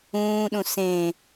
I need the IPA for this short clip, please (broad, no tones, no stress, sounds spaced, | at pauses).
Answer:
ũː ɗ ũ s ẽ